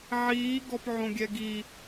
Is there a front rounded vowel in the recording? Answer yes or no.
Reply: no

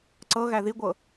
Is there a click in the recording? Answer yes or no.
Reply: yes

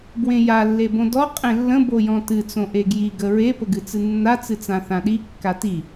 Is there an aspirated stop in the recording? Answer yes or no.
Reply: no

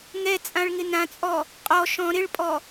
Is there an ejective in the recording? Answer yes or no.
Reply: yes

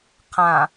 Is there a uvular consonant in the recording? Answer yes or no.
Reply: yes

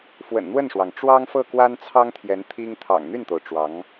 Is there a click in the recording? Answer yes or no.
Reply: no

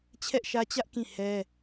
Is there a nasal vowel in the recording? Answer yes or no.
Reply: yes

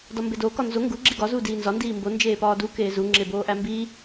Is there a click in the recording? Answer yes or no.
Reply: yes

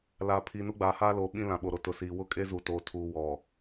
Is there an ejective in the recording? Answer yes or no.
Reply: yes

